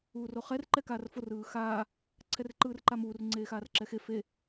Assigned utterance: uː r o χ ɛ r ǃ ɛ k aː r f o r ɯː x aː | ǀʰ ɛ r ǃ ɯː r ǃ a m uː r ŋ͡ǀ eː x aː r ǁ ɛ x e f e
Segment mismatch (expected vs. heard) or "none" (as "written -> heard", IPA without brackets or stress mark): none